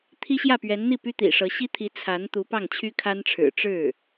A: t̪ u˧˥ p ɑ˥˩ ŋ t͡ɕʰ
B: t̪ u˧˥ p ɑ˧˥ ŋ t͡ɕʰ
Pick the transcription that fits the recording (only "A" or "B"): A